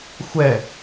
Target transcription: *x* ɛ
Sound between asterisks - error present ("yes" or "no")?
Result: yes